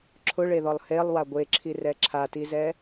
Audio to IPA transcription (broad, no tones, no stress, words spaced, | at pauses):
ǁʰʊɭeðɔlˠ helˠwa ɡʷeǁʰirɛ ǁʰatizɛ